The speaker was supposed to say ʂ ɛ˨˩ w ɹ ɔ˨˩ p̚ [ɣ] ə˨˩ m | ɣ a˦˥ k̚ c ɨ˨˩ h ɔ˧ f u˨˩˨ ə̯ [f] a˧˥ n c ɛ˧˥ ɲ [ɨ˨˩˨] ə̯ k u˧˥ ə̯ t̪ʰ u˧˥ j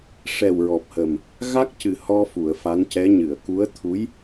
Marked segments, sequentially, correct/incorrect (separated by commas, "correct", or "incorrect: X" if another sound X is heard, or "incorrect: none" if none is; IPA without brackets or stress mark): incorrect: h, correct, correct